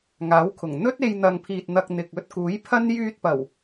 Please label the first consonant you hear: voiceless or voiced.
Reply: voiced